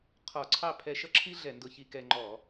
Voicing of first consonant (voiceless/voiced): voiceless